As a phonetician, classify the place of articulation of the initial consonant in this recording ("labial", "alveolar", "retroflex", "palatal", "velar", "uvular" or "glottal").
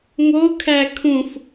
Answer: velar